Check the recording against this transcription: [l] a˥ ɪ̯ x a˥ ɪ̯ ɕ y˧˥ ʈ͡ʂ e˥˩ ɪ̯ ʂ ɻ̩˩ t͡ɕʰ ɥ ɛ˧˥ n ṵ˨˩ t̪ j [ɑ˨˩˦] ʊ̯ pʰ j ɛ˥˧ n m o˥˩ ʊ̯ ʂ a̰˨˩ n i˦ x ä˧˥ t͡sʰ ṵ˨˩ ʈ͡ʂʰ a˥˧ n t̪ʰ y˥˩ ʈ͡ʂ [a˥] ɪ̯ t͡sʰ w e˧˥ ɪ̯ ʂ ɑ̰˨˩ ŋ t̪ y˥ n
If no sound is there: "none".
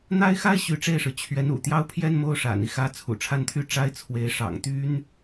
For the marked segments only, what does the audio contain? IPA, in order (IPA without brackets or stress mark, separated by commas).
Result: n̪, ɑ˥, a˥